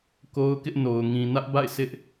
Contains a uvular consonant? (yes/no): no